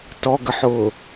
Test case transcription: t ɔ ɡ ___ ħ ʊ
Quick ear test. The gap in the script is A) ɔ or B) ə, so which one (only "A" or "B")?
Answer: B